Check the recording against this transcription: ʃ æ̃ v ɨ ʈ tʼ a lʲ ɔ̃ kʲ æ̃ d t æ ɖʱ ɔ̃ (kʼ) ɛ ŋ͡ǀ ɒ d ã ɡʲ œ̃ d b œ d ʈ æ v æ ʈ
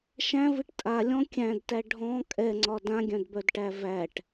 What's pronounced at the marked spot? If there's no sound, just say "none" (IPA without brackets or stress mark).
kʼ